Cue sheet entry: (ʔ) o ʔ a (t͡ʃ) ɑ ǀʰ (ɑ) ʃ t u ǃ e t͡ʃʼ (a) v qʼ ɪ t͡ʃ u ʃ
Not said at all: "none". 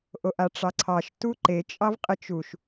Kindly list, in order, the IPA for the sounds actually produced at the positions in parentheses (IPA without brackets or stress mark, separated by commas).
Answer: ʔ, ʈ͡ʂ, ɑ, ɑ